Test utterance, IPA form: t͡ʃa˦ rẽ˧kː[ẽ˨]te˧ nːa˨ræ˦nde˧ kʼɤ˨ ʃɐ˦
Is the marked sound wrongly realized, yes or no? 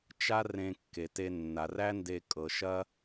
yes